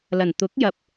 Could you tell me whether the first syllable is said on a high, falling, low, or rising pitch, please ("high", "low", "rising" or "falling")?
low